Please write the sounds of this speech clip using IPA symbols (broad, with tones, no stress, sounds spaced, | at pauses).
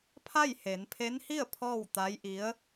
pʰ a˥˨ j h e˩˧ n pʰ e˧˥ n h i˥˨ ə̯ pʰ ɔː˥˨ w t̪ a˧˥ j ʔ i˧˥ ə̯